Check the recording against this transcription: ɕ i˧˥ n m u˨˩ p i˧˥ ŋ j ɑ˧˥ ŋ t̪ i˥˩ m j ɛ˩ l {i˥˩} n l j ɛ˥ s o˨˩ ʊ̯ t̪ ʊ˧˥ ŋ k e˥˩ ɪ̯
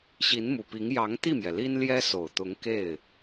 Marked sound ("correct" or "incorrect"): incorrect